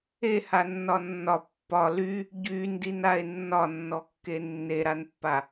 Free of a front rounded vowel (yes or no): no